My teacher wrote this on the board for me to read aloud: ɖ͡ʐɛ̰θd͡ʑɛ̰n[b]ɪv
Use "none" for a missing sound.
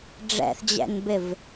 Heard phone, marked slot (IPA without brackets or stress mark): b